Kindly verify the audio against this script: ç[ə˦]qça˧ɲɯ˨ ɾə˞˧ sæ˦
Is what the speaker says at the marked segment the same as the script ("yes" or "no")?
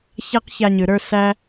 no